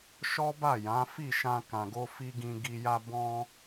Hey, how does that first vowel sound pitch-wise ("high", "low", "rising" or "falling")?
high